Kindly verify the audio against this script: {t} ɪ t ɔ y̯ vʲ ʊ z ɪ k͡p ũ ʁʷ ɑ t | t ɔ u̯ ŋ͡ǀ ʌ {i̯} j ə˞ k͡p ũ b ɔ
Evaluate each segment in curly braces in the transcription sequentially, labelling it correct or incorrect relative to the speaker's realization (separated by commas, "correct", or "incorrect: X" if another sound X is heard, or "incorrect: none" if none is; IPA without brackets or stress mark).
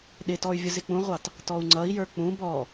incorrect: ɗ, correct